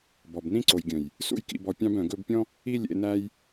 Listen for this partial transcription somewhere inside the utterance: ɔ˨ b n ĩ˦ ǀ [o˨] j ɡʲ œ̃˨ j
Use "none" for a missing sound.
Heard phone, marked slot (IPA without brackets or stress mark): o˨